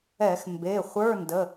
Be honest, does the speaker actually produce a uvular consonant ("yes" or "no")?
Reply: yes